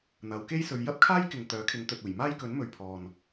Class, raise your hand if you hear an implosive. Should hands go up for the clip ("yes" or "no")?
no